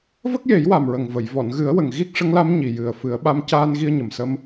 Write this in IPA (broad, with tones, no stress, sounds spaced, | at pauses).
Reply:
v ə˦˥ k̚ j e˨˩˦ j w a˨˩ m ɹ ə˨˩ ŋ v ə˨˩˨ j v ɔ˨˩˨ n ɣ ɨ˨˩˦ ə̯ w ə˨˩ ŋ ɣ i˦˥ k̚ ʂ ə˧˥ ŋ l a˧˥ m ɲ i˨˩ j ɨ˨˩ ə̯ f ɨ˨˩˦ ə̯ ɓ a˧˥ m c aː˧ n ɣ i˧ ə̯ ɲ ə˨˩ m s ə˧ m